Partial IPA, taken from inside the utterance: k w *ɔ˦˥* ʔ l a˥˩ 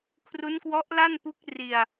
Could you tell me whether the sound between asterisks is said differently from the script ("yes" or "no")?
no